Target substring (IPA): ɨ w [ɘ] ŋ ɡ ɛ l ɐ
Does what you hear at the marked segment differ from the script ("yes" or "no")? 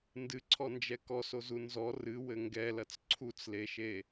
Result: no